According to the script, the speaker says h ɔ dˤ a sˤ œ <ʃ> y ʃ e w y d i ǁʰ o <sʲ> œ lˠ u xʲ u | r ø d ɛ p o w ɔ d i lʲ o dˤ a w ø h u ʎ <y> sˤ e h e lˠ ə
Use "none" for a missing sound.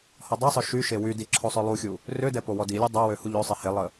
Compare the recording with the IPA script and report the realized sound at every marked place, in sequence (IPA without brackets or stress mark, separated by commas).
ʃ, sˤ, ø